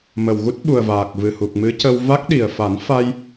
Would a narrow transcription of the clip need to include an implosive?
yes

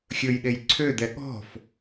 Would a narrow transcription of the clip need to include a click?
yes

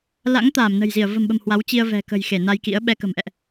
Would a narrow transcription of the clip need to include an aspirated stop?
no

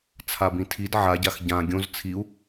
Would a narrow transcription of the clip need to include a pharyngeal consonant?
yes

